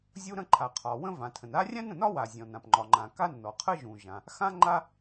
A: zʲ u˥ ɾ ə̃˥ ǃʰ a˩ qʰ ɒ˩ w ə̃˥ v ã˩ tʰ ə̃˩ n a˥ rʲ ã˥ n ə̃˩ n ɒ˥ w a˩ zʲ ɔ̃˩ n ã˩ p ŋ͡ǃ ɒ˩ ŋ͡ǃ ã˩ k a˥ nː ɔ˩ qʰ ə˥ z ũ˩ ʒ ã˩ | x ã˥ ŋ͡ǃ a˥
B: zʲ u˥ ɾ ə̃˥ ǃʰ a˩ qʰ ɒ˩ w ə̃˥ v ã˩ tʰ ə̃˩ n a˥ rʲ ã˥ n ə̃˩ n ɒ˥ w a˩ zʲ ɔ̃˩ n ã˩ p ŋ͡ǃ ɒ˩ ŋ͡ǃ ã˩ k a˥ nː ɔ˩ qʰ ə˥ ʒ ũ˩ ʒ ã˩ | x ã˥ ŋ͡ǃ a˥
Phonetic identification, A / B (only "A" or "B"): B